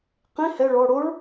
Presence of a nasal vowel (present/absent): present